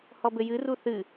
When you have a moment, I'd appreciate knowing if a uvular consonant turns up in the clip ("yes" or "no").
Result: no